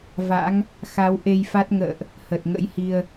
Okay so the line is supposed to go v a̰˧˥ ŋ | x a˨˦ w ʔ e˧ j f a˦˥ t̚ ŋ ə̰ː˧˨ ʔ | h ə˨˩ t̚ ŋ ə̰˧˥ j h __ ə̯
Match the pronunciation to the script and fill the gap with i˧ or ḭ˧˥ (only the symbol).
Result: i˧